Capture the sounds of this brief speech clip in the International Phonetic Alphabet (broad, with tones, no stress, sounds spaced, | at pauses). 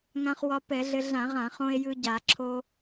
ŋ ã˧ χ w ɒ˧ p ɛ˧˩˧ ɮ ɘ˧ ɮ ã˧˩˧ ʁ ã˧˩˧ χ õ˧ e̯ j ɯ˧ ɟ a˧˩˧ ǁʰ o˧